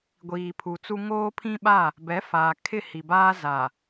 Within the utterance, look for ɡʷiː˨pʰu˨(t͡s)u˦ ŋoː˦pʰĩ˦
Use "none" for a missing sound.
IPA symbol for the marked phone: t͡s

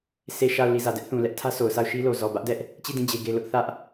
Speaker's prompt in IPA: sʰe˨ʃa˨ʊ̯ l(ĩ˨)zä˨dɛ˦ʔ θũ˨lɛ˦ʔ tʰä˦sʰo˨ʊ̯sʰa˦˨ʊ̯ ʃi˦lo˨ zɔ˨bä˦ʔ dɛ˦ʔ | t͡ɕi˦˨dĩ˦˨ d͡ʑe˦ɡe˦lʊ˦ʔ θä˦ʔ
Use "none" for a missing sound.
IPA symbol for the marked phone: i˨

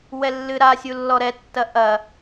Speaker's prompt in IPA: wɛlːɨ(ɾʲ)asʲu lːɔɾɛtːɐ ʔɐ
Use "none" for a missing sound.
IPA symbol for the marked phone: ɾ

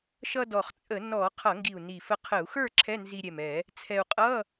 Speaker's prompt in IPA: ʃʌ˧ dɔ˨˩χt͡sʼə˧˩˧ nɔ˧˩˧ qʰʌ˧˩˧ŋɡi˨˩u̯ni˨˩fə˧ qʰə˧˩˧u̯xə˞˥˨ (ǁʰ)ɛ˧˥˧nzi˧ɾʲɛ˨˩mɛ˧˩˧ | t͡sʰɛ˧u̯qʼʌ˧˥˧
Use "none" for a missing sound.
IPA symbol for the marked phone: ǁʰ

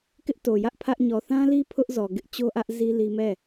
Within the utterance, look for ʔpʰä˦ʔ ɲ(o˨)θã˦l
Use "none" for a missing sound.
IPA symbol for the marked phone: ɔ˨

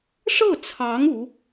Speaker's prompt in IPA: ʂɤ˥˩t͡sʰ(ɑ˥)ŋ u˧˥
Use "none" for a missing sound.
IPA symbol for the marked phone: ɑ˧˥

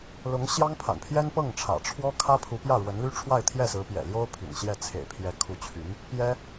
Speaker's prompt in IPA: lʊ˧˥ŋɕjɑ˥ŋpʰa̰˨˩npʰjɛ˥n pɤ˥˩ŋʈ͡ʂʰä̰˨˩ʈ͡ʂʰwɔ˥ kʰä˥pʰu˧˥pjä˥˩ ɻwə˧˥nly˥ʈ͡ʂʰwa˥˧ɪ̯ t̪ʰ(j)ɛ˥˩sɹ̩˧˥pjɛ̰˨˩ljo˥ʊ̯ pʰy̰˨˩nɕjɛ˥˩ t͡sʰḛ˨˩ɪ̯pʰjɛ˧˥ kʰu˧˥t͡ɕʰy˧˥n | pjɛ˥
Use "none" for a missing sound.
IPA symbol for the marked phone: j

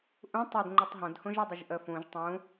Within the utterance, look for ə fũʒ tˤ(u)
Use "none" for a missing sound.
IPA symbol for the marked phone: ũ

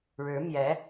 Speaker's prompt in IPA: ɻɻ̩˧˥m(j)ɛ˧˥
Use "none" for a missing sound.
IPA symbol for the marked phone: j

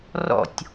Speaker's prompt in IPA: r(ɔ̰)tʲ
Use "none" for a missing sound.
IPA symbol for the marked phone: ɔ̰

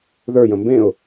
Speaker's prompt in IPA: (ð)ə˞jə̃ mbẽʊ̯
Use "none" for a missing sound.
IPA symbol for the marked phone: ð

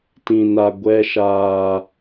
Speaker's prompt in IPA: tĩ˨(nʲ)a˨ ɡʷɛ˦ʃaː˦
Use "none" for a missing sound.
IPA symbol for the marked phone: n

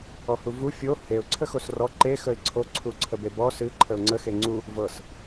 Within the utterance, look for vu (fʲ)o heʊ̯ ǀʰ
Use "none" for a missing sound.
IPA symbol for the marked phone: fʲ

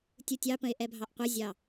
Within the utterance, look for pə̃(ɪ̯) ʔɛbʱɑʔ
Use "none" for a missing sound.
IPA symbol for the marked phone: ɪ̯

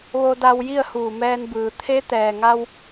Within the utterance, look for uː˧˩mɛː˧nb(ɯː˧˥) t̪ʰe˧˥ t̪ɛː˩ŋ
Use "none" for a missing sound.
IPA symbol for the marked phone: ɯː˩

